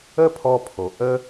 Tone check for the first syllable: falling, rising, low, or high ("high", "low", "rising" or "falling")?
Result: high